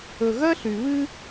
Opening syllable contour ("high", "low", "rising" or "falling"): low